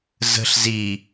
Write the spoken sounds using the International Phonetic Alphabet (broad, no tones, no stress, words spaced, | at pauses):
zə̤ɬ zi